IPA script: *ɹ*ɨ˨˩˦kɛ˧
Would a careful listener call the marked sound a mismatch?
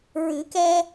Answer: no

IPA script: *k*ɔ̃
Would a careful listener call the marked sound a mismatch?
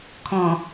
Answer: yes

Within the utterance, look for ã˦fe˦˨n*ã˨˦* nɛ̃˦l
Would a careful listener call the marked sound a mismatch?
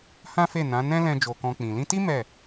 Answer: no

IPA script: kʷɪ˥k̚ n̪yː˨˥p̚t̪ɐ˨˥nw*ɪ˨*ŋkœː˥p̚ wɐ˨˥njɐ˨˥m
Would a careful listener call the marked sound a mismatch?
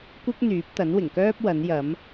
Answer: yes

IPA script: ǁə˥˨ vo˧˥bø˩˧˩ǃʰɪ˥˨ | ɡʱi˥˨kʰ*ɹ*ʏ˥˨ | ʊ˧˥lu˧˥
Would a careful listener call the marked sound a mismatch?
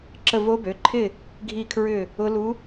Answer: no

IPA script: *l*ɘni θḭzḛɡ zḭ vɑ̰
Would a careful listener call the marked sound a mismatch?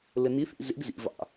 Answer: no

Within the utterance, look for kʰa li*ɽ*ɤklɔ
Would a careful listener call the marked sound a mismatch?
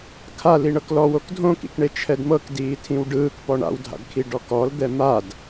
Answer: yes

